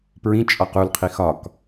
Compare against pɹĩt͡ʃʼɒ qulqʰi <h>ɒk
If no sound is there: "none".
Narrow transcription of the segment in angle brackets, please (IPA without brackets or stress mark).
x